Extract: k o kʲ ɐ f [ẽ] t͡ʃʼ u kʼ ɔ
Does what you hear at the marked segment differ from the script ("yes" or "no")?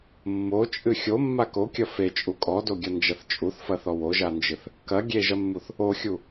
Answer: yes